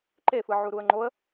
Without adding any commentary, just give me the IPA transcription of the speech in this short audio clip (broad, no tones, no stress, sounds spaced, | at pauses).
ǃ e f ɯ ʕ u ɾ u ə̯ ŋ͡ǃ o ə̯